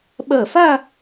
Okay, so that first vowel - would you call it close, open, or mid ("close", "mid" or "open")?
open